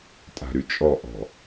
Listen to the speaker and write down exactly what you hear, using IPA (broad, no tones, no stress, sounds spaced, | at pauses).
tʼ a̤ ɾ y t͡ʃʼ ɔ ʔ ɔ̤